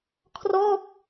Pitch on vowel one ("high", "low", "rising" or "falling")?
falling